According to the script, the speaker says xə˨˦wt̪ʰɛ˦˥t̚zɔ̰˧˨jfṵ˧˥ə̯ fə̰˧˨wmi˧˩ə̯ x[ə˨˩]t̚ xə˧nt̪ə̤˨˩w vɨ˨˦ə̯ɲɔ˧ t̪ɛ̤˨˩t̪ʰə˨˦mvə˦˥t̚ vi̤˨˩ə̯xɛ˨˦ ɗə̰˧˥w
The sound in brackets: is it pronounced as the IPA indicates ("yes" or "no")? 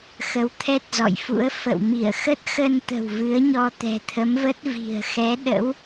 no